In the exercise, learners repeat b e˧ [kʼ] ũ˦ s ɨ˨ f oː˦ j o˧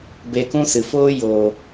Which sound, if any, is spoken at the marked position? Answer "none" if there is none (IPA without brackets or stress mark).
k